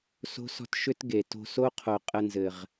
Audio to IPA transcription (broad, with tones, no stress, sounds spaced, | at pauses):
s o̤˦ s ɔ̤˦ t ʃ ʏ˦ t ɡ e˨ t o̤˧ s o˦ qʰ o˨ qʼ ə˧ n z ɘ˨ ʁ